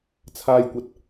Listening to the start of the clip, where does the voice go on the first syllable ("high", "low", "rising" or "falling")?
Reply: high